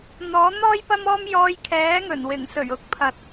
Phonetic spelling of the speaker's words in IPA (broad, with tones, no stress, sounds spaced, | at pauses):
n̪ ɔː˨˥ n̪ ɔː˥ j p ɐ˥ m ɔː˥ m j ɔː˧ j kʰ ɛː˨˥ ŋ ɵ˨˩ n w ɪ˨˩ ŋ s ɵ˨˩ ɥ ʊ˨˥ k̚ pʰ ɐ˨ t̚